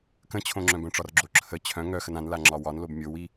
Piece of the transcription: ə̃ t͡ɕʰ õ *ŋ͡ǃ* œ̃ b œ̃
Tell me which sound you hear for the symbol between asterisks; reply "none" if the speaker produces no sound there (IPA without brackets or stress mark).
ŋ͡ǁ